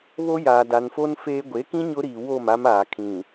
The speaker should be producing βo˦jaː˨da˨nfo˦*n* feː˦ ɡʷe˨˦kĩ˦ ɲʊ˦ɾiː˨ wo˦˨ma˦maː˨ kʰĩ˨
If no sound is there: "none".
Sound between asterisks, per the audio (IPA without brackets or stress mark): n